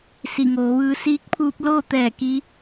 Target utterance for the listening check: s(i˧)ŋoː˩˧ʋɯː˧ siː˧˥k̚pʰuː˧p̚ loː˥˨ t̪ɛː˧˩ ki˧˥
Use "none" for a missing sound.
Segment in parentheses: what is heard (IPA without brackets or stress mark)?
i˧˩